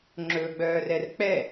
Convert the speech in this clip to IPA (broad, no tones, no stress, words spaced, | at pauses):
ŋ͡ǁɵɡ͡bœːrɛr k͡pɛ